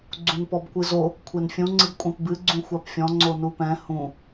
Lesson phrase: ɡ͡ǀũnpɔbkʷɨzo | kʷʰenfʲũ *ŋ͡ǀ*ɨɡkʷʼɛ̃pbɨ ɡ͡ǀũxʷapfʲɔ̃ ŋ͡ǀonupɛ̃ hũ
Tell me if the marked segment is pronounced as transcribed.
yes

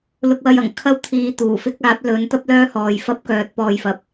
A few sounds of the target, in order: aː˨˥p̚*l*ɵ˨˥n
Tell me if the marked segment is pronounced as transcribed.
yes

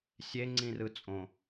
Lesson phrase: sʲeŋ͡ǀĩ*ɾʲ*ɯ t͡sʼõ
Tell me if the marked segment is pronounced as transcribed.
no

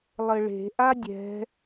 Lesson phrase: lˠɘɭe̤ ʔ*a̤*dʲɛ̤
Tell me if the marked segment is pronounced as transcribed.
no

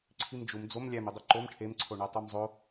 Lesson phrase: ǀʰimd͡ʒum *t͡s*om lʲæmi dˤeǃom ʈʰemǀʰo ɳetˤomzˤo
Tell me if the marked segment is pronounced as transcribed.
no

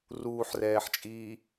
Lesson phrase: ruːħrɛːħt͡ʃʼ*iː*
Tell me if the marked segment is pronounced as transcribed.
yes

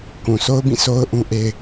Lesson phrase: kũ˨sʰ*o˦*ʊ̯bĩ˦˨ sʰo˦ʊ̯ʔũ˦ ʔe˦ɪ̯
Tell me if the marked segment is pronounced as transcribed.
yes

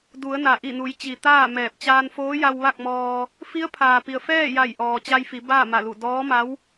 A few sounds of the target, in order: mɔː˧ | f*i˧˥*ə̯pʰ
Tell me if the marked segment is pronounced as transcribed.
yes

